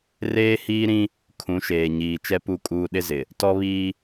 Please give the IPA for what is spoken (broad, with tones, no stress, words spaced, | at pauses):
reː˦hiː˦ɾĩ˦ | kʰũ˨˦ʃeː˨ɲiː˨ t͡ʃɛ˦pu˦˨kʼuː˦ ɗɪ˦zɪ˨ | tɔ˦βiː˦